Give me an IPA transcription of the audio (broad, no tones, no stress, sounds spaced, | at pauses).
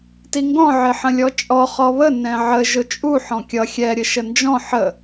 t i ŋ ɡ ɔ̃ ʕ ɪ ħ ə̃ lʲ ɔ t͡ʃʼ ɔ χ ɔ β ə n ɛ̃ ʕ ə ʒ ʊ t͡ʃʼ u ħ ɔ̃ kʲ ʌ xʲ ɛ ɾʲ ə ʃ ə n d͡ʒ ɔ̃ ħ ə